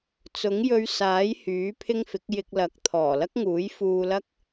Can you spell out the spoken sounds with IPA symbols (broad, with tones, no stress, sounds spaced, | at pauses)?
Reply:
t͡s ʊ˨˥ ŋ j ɵ˧ ɥ s aː˨˥ j h yː˨˥ pʰ ɪ˥ ŋ f ɪ˨˥ k̚ j ɪ˧ k̚ l ɐ˨˥ k̚ t̪ʰ ɔː˨˩ l ɐ˥ k̚ ŋ uː˨˥ j f uː˧ l ɐ˥ k̚